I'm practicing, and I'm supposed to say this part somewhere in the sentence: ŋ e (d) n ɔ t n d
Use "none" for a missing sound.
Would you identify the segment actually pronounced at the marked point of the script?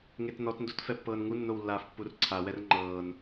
t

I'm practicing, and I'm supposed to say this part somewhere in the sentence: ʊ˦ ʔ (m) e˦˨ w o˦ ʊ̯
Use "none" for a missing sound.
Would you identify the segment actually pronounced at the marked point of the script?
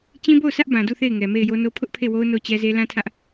pʰ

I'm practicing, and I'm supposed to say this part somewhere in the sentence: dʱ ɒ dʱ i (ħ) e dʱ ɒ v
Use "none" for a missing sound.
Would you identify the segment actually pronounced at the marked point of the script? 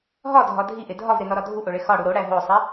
ʔ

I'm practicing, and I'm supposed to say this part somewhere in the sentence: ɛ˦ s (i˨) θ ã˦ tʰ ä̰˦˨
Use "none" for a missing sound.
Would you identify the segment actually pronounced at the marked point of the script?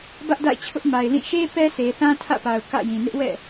e˨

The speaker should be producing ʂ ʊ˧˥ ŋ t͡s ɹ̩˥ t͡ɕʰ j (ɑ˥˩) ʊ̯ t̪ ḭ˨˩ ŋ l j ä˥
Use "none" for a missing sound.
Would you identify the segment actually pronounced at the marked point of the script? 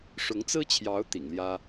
ɑ˧˥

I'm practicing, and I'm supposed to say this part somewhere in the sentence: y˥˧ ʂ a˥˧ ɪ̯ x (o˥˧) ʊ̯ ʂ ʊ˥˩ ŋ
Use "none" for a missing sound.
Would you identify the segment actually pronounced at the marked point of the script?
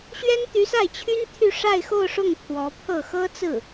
o˥˧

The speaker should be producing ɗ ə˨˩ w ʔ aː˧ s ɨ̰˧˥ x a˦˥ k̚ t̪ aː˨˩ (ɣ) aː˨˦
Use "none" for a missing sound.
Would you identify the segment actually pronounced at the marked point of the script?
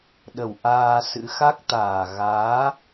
ɣ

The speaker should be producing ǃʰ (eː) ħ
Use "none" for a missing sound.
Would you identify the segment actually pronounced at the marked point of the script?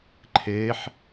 eː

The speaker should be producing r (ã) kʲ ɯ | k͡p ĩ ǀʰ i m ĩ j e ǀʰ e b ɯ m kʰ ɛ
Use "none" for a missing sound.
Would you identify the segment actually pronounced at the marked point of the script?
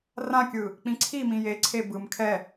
ã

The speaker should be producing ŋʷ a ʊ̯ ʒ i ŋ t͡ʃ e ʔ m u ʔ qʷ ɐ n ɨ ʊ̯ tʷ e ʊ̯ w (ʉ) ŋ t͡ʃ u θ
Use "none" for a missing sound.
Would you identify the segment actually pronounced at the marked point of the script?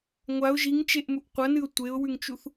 ʉ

